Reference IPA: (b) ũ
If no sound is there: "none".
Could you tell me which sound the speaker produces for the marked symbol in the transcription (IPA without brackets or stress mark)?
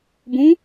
b